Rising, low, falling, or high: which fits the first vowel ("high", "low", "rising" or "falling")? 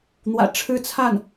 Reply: low